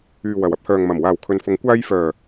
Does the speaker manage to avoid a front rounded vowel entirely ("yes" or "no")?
no